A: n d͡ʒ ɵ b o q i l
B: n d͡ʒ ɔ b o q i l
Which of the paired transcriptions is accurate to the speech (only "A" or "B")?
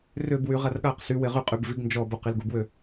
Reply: B